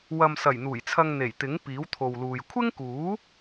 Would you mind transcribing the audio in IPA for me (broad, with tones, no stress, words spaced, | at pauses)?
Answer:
wɐ˨msɐ˨˩j n̪uː˨˩jt͡sʰɐ˧ŋ n̪e˨˩jt̪ɪ˨˥ŋ piː˨˥wt̪ʰo˨wluː˨j kʷʰɪ˥ŋkuː˨˥